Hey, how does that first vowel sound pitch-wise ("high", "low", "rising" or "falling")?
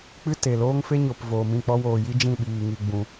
high